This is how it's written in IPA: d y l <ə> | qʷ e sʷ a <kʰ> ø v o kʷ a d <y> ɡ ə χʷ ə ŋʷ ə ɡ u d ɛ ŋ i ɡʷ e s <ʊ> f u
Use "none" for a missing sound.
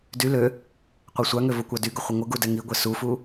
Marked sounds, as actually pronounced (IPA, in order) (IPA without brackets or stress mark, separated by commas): ø, ŋ, y, u